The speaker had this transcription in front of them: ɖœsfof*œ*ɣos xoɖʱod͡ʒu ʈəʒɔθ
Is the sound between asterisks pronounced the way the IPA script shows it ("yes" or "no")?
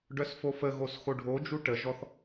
no